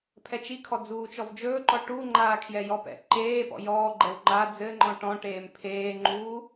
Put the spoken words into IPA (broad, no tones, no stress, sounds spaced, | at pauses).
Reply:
pʰ ɛ t͡ʃ i kʰ ɔ d͡z uː t͡ʃ ɔ v d͡ʒ ɵː ǃ ɔ ʈ u ŋ͡ǃ aː kʰ j ɛ j ɔ p ɛ̰ ǃ eː p ɔ̰ j ɔː ɡ͡ǃ ɛ w ŋ͡ǃ a d͡z ɘ ŋ͡ǃ ɔ̃ ʈ ɔ̃ ʈ eː m pʰ eː ŋ͡ǃ uː